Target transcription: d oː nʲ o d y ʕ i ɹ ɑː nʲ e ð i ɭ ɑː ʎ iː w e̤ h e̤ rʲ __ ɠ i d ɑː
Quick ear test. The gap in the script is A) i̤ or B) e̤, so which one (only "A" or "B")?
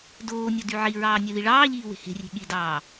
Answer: B